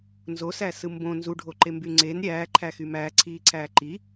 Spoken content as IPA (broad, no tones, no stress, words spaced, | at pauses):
nzosæsɯ mbõ nzuɖʱoǃemby ŋ͡ǀen ɾʲæːǃʰæxy mæːǀʰiːǀʰæː ǃi